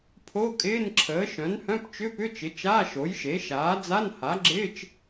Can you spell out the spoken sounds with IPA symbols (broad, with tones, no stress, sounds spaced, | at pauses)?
pʰ o˧˥˧ kʼ ɪː˧˥˧ n ǁʰ əː˩˥ ʃ œ̃˩˥ n h œ̃˧˥˧ p t͡ʃ ʏ˧˥˧ p ʏ˧˥˧ t͡ʃ ɪ˩˥ t͡ʃ aː˧˥˧ ʃ o˩˥ j ʃ e˩˥ ʃ aː˩˥ d͡z a˧˥˧ n h a˩˥ ɡ͡ǁ ɪː˧˥˧ t͡ʃ